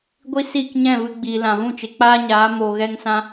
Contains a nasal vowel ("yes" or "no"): yes